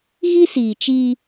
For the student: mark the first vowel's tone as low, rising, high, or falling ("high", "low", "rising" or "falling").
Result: high